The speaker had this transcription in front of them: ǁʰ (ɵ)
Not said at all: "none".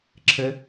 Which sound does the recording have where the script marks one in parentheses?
ə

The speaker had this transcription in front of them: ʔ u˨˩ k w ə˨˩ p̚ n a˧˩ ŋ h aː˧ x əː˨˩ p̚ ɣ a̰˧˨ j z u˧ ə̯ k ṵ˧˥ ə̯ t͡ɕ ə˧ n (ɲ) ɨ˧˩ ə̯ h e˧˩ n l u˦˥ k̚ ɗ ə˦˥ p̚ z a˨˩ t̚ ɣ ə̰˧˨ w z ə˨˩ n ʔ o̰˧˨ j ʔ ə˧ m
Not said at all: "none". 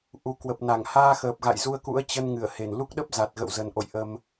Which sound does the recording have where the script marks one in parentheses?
ŋ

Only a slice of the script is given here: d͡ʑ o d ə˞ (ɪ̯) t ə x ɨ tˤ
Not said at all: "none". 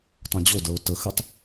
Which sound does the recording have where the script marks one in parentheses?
ʊ̯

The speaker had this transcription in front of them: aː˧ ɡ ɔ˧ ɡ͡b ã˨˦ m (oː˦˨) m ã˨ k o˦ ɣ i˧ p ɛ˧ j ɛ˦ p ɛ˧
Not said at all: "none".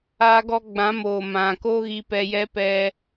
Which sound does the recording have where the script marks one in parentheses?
oː˨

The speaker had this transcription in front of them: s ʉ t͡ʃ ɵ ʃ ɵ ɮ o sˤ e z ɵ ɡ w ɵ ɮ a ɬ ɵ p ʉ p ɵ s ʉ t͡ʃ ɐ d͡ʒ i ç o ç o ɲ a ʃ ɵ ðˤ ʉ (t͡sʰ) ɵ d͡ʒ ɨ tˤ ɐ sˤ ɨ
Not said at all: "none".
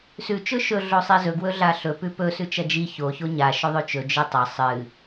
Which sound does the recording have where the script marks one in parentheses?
t͡ʃ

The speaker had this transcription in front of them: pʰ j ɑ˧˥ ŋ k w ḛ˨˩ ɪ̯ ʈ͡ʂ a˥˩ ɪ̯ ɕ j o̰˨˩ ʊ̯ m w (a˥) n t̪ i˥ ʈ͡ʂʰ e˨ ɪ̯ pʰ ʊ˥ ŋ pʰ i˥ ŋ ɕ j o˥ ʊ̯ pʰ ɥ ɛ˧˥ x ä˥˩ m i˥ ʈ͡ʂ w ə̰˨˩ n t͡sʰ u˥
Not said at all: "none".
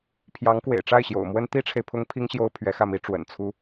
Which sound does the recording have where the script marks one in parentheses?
ə˥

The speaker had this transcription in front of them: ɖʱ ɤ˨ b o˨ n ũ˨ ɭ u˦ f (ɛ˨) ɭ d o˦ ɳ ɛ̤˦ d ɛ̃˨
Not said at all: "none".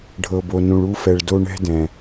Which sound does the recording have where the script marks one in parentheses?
ɛ˨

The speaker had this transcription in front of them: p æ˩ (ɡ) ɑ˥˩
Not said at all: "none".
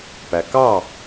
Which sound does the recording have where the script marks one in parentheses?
k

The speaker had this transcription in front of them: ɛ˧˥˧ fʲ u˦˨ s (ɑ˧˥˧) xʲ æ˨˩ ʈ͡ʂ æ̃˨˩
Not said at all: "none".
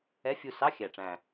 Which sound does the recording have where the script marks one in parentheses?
ɑ˧˥˧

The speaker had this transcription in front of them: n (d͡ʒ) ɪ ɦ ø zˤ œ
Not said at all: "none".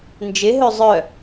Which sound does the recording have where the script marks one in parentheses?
d͡ʒ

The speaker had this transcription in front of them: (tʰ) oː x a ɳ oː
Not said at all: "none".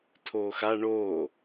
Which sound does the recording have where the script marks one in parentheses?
tʰ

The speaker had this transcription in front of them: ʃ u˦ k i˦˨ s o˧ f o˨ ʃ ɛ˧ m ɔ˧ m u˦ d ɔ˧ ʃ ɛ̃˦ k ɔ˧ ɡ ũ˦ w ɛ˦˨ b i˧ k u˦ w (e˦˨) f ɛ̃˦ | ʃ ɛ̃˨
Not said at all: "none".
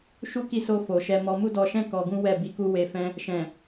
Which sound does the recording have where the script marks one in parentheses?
e˧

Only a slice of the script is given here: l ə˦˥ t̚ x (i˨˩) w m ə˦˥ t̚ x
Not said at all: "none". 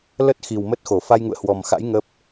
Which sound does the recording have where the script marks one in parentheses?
i˨˩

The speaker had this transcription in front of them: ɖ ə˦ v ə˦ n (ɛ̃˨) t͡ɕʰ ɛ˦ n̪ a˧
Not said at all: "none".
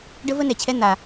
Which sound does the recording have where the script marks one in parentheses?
ɛ˨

